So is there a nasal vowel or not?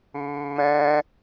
yes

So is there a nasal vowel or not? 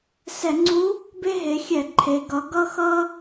no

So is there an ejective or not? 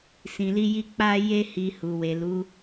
no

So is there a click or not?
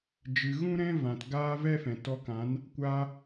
no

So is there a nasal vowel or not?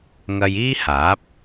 no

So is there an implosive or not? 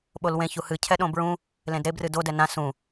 yes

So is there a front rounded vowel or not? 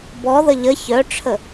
yes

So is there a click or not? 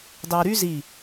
no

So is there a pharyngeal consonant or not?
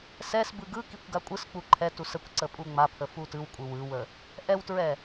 no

